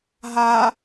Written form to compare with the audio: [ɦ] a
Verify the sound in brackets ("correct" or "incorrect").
correct